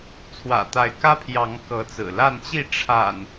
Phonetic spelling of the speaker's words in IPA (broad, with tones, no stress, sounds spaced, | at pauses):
t͡sʰ w ä̰˨˩ t̪ a˨˦ ɪ̯ k ä˦ pʰ j ɑ˨˦ ŋ k ɤ˨˦ t͡s ɹ̩˨˩ l a˥˨ n t͡ɕ i˥˨ ʈ͡ʂʰ a̰˨˩ n